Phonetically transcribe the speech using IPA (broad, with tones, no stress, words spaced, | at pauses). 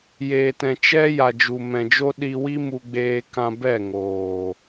jeː˨tɛ̃˨ t͡ʃɛ˦ja˨ d͡ʒu˨mɛ̃˨d͡ʒo˦ ɗi˧wi˦ mu˧ɡ͡beː˧ kã˧ bɛ˦˨ŋoː˨